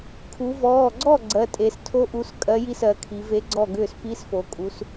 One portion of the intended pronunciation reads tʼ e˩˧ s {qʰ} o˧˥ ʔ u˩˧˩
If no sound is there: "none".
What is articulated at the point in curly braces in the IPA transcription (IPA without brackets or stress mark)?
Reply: tʰ